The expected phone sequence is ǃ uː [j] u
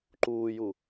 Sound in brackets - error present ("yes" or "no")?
no